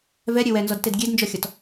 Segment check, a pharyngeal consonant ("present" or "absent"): absent